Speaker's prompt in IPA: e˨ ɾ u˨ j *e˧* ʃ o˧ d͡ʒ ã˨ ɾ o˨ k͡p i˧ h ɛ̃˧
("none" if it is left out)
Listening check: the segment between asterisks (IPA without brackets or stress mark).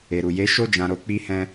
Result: e˨˦